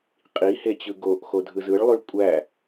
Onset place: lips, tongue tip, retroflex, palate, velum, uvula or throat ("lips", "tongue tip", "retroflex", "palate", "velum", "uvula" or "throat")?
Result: uvula